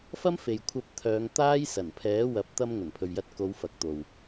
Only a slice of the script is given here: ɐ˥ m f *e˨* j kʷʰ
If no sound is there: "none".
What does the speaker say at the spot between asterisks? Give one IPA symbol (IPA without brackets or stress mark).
e˨